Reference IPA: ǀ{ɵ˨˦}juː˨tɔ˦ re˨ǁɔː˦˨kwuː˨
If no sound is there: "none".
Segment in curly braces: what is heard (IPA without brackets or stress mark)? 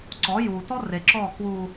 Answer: ɔ˨˦